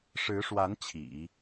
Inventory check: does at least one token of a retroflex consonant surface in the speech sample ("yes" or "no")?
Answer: yes